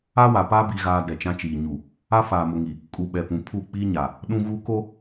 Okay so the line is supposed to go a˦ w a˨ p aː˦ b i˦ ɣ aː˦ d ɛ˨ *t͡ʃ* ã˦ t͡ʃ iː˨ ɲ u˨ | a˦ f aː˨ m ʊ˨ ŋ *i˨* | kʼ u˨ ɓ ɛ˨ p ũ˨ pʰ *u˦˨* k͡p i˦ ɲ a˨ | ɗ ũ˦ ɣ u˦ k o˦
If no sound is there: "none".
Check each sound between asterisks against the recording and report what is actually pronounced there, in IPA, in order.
t͡ʃ, i˨, u˦˨

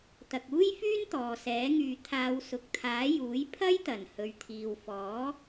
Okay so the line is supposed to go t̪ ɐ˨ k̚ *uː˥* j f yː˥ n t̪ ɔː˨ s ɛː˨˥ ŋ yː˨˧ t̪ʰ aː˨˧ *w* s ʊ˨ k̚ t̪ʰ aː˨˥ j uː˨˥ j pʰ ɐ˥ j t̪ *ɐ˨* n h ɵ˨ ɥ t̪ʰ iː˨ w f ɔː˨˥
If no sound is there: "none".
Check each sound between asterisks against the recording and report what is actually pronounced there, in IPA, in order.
uː˥, w, ɐ˨˩

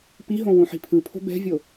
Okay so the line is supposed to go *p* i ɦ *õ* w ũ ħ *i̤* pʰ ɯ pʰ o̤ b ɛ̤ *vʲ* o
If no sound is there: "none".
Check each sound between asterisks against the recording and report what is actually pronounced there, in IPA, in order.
p, õ, i̤, vʲ

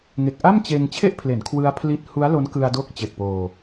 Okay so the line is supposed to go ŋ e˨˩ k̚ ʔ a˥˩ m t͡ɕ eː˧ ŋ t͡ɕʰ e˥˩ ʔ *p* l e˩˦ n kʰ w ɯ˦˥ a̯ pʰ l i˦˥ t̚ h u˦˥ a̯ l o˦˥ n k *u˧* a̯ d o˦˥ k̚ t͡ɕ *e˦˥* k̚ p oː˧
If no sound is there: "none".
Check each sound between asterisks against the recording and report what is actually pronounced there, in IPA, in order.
pʰ, ɯ˧, e˨˩

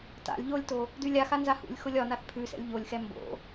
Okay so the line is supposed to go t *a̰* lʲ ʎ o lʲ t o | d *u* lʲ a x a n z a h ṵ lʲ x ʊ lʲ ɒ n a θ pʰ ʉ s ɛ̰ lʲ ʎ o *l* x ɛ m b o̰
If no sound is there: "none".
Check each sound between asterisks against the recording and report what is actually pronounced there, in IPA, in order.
a̰, ʉ, lʲ

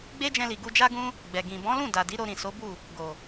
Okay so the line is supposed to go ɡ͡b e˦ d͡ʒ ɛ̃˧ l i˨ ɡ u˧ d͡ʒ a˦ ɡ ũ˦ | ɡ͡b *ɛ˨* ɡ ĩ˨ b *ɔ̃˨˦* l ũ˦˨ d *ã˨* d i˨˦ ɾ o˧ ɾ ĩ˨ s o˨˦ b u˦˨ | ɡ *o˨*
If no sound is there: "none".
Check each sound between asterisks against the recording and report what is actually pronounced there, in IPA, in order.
ɛ˨, ɔ̃˨˦, a˨, o˨

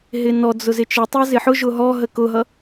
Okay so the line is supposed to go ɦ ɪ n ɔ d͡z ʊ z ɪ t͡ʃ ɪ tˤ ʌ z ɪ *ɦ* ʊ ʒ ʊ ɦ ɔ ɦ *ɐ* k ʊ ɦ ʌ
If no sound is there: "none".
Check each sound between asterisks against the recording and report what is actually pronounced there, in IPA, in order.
ħ, ə

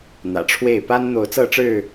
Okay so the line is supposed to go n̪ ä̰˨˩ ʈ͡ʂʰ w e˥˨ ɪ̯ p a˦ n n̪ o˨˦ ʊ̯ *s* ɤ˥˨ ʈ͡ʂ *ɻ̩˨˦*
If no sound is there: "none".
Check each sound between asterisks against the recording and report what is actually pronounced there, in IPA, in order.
t͡s, ɻ̩˥˨

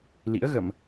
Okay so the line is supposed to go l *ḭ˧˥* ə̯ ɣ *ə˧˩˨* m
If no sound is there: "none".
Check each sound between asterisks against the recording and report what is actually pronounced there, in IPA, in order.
ḭ˧˥, ə˧˩˨

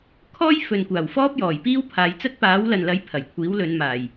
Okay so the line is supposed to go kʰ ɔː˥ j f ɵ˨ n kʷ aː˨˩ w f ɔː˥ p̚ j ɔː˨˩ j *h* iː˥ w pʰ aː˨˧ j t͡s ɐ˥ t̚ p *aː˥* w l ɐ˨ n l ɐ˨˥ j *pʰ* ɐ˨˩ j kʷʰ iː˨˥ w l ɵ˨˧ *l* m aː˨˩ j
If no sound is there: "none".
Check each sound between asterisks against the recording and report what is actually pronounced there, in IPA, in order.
p, aː˨˥, pʰ, n

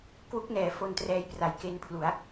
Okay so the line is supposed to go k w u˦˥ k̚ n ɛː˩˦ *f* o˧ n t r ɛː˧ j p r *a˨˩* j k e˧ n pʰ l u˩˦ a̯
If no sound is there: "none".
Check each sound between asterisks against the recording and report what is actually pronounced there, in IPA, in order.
f, a˨˩

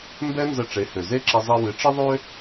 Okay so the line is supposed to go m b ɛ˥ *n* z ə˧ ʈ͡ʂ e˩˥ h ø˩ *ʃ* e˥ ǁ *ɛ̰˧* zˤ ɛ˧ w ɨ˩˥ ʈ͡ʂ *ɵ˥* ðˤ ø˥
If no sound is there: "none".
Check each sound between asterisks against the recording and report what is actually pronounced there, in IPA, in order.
n, z, ɛ˧, ə˥

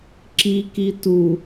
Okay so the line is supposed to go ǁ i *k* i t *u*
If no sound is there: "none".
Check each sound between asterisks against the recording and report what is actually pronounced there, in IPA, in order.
k, u

